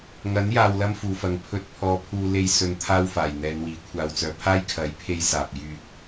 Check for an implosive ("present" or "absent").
absent